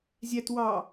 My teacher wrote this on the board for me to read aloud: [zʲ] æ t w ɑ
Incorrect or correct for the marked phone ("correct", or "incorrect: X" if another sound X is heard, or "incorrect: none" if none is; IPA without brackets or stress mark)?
correct